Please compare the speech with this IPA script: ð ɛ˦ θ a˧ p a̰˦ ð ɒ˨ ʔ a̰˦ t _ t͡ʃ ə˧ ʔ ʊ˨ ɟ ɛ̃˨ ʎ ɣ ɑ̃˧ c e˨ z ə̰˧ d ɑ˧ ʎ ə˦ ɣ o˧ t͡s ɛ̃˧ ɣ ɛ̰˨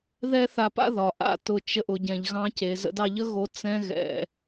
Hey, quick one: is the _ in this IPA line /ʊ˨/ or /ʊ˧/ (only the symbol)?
ʊ˧